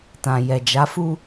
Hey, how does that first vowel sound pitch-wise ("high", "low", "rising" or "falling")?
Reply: low